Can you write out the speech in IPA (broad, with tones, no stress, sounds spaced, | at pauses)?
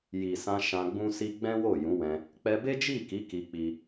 j i˨ s ã˧ ʃ ã˧ ɡ͡b ũ˦ s i˦ ɡ͡b ɛ̃˦ w o˦˨ j ũ˨˦ w ɛ̃˧ | k͡p ɛ˧ b e˦ d͡ʒ i˦˨ k i˨˦ k i˧ k͡p i˧